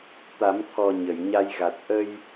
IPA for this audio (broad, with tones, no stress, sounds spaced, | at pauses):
t̪ a˨˩˦ m t̪ʰ ɔ˨˩ ɲ ə˨˩˨ j ɲ a˧ j ɣ a˨˩ t̚ ʔ ə˧ j